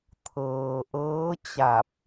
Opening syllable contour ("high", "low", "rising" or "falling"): low